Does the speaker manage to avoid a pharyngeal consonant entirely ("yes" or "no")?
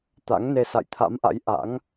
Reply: yes